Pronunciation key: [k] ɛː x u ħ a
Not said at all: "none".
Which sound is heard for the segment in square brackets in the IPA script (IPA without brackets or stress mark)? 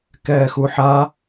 k